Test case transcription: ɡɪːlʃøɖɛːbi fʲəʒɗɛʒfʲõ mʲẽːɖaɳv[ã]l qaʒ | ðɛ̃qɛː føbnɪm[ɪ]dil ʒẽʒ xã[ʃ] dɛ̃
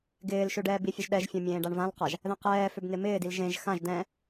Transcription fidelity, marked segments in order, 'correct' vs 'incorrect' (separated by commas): correct, incorrect, incorrect